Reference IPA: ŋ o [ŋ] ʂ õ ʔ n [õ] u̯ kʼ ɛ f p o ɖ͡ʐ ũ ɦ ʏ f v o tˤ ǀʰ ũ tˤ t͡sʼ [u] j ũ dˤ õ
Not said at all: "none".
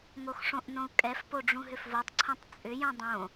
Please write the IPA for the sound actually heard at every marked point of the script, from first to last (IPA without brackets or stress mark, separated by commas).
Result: x, õ, ʏ